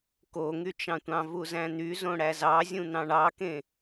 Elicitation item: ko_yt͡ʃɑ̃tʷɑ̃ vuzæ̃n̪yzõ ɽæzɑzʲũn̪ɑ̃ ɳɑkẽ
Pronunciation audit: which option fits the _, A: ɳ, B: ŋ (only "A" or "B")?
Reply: B